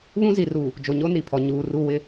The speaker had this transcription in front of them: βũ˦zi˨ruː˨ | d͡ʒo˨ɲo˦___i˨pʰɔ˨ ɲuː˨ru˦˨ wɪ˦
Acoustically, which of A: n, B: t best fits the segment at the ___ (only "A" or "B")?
A